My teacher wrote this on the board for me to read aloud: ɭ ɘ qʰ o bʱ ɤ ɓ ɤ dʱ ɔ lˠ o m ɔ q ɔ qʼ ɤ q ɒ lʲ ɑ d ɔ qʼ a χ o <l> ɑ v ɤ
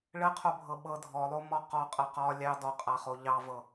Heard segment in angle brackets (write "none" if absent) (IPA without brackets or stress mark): ʎ